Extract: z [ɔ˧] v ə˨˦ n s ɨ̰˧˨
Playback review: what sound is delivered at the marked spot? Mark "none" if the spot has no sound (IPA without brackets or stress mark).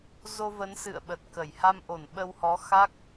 o˧